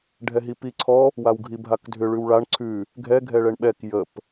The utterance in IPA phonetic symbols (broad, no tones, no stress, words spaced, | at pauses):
ɖʱɛɦipiǀʰɔ | wawɡʱibʱakdʱʏ ɭʉwɭaɳ ǀʰʉ | ɡʱɛ ɡʱɛɭɛɳɓɛk jəp